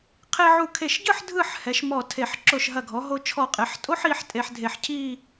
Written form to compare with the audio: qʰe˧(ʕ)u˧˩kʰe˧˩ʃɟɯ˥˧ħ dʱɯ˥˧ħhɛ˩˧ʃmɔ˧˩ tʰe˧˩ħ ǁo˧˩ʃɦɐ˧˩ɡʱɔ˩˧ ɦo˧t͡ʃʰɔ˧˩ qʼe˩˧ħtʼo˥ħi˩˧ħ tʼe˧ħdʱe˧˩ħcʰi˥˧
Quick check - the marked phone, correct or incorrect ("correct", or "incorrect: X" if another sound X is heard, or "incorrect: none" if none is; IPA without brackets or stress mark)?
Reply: correct